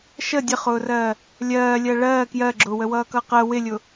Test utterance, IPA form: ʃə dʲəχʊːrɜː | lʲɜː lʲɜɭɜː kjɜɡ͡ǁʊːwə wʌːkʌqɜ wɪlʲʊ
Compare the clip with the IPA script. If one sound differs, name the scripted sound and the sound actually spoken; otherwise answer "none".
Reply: none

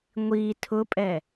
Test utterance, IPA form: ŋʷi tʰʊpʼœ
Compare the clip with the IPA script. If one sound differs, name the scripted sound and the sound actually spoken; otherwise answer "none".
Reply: œ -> ɛ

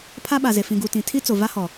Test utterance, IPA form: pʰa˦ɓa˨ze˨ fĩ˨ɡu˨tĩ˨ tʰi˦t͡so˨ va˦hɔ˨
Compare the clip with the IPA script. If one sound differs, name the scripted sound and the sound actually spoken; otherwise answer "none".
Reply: none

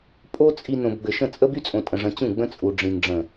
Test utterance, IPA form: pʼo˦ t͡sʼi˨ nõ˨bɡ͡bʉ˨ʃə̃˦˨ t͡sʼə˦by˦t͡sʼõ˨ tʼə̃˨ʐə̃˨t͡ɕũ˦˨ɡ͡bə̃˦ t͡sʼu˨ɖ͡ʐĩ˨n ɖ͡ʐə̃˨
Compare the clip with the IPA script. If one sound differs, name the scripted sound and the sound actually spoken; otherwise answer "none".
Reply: ʉ˨ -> ɘ˨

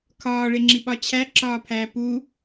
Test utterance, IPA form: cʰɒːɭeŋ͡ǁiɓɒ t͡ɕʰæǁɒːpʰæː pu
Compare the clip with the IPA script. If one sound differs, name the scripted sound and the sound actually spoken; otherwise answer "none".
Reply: cʰ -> kʰ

